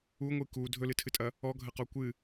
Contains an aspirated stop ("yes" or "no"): yes